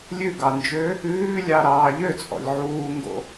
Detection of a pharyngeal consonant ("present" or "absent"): present